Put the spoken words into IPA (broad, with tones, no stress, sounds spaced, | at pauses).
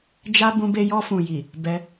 d͡ʒ a˦ b ũ˦ b e˦ j ɔ˧ f ũ˨ j i˨ | b ɛ˧